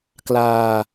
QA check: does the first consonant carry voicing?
no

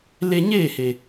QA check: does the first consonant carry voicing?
yes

